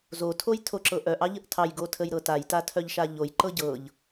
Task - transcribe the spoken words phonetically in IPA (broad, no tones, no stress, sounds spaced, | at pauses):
z o tʰ o j tʰ o ǁ ɤ ʔ œ ʔ ɑ ʎ ə ʔ tʰ ɑ j ɡ o tʰ ə j ɾ ɤ t a j t a tʰ œ ʎ ʃ a ʎ o j ǃ ɤ ɟ ɤ ʎ